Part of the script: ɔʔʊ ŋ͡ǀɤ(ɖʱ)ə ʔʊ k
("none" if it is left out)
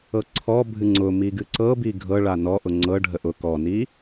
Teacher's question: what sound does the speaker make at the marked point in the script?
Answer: ɖʱ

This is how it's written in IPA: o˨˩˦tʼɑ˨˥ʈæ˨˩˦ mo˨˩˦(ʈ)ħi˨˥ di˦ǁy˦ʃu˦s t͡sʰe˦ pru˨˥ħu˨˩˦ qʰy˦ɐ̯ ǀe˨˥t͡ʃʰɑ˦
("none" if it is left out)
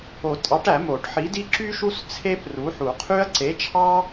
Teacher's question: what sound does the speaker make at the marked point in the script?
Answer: ʈ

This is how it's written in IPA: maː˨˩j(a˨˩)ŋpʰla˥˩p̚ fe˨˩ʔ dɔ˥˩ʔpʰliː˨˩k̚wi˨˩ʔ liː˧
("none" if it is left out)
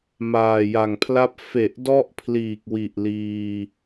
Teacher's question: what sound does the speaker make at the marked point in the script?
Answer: a˨˩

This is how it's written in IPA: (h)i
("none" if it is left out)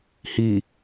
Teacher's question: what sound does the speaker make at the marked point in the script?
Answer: h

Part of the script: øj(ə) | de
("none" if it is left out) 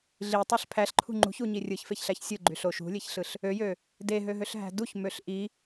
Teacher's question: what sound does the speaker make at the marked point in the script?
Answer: ø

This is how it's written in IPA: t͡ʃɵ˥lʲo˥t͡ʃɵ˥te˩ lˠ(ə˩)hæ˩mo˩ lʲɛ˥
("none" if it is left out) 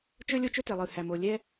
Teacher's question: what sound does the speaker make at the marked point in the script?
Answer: ɯ˩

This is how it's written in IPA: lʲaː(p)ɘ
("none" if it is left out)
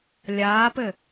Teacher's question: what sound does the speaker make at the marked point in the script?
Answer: p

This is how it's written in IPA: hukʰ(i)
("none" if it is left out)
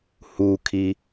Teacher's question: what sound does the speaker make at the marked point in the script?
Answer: i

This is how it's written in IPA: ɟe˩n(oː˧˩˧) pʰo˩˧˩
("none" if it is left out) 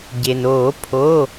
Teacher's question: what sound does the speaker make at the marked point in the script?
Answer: oː˧˩˧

